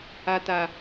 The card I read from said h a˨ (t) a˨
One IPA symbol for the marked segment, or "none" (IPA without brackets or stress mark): t